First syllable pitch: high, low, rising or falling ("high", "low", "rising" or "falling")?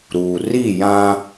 low